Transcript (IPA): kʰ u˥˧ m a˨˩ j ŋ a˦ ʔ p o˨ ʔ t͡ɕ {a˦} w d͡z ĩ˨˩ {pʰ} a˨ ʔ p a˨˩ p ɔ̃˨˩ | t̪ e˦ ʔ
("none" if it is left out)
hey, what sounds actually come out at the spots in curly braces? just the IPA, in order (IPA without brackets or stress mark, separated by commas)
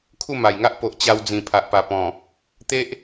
a˧, pʰ